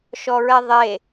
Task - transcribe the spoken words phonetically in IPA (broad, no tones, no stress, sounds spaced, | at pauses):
ʃ ɔ ɹ ɛ ðˤ e